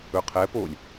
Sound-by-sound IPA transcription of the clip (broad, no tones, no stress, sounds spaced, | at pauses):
ɵ qʰ ɛ p o lʲ